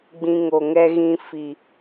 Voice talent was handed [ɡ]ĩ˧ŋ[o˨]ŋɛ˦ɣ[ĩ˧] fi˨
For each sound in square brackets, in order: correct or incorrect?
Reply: incorrect: ɡ͡b, correct, incorrect: ĩ˦

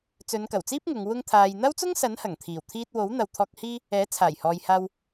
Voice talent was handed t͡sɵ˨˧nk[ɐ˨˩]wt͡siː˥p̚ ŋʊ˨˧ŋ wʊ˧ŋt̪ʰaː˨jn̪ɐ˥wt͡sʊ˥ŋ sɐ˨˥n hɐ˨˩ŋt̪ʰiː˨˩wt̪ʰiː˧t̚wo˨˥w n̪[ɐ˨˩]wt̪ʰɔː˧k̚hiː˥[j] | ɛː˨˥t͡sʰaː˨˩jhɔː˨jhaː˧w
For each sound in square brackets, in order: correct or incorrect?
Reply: correct, incorrect: ɐ˨, incorrect: none

